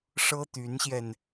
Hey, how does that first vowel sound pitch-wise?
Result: high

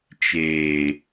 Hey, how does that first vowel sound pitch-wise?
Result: low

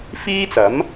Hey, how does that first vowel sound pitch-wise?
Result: high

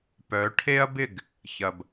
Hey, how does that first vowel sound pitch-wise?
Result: rising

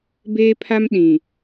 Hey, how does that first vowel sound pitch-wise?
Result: high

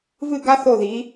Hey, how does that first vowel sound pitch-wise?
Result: falling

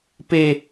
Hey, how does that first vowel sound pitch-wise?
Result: high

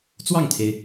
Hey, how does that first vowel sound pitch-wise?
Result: falling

